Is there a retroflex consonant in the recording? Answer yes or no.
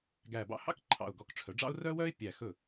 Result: yes